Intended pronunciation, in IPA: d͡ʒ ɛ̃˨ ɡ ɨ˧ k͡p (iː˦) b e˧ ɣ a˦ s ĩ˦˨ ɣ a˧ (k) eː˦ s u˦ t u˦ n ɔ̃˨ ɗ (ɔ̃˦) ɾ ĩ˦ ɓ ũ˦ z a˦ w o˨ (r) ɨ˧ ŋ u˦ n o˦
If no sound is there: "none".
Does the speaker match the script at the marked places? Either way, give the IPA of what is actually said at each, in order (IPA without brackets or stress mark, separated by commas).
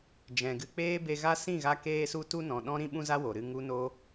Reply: eː˦, k, ɔ̃˦, ɾ